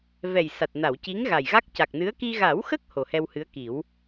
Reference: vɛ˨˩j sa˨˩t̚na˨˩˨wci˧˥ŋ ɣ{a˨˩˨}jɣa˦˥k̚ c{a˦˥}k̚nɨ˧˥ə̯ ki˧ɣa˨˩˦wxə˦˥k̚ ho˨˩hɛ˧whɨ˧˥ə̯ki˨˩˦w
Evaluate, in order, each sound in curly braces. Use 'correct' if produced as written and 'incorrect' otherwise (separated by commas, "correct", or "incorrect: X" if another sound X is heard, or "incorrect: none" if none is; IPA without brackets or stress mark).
incorrect: a˨˩, incorrect: a˨˩